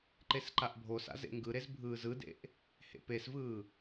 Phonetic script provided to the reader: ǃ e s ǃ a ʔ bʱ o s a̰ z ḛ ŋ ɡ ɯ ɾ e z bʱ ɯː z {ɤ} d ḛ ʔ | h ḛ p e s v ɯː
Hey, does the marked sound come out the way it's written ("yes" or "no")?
no